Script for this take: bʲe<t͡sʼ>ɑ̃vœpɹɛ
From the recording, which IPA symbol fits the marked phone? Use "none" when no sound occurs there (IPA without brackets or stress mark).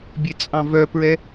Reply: t͡sʼ